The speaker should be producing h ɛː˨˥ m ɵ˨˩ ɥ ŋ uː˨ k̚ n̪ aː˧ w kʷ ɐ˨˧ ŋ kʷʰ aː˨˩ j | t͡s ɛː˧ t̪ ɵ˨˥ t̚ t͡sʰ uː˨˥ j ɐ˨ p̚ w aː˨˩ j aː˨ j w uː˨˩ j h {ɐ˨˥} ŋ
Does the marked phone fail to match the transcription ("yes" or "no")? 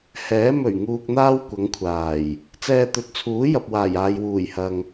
yes